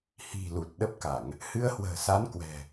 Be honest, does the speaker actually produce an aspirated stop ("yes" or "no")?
no